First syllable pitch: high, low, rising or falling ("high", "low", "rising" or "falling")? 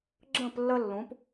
falling